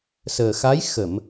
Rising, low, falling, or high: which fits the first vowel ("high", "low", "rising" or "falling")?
low